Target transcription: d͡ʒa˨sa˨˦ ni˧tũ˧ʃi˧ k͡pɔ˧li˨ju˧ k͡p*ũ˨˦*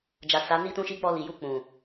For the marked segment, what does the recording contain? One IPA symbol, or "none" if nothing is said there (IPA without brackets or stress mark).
ũ˨